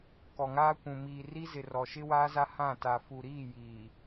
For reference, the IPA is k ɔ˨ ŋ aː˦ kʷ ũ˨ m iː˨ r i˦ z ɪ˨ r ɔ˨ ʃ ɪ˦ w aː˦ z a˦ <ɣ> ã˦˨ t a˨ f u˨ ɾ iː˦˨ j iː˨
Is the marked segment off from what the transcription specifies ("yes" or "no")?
yes